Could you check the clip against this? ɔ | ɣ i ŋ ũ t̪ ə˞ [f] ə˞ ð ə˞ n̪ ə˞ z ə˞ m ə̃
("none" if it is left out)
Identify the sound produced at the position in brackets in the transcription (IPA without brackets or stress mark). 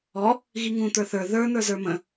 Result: θ